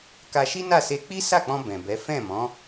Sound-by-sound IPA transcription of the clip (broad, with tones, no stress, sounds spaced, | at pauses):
k a˧ ʃ i˦ n a˦˨ s e˧ k͡p i˦ s a˦˨ k͡p ɔ̃˧ b ɛ̃˨ b ɛ˨˦ f ɛ̃˦˨ m ɔ̃˨˦